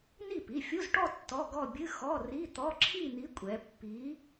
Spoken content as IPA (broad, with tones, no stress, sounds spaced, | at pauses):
n i˥˩ p i˩˧˩ fʲ u˧˥˧ z ʈ ɔ˥˧ tː ɔ˧˥˧ ɡ ɔ˥˧ bʲ ɨ˧˥˧ x ɔ˧˥˧ r i˧˥˧ t̪ ɔ˧˥˧ ǁʰ i˥˧ n̪ i˧˥ kʷʼ ɛ˧˥ pː i˧˥